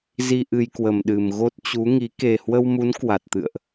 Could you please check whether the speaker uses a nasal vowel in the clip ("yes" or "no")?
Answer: no